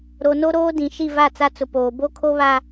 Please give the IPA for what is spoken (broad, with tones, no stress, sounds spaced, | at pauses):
ɾ o˨ n o˦ ɾ oː˦ d ĩ˨ ʃ i˦˨ v a˦˨ t͡s a˦ t͡s ʊ˨ p oː˨ b o˦ kʰ o˦ β a˦